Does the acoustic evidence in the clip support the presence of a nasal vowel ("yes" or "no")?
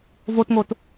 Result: no